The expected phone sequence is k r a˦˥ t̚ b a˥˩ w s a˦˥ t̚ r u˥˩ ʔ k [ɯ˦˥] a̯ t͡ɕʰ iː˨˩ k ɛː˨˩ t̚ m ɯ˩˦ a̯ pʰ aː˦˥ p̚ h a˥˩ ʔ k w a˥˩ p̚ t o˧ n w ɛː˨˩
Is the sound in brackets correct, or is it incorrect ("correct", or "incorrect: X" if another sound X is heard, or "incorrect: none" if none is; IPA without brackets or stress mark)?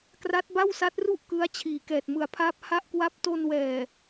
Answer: correct